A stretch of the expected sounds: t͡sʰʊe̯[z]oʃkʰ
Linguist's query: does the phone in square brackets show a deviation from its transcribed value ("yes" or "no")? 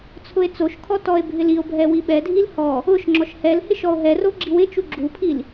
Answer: yes